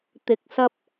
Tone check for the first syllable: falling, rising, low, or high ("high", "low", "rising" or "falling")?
low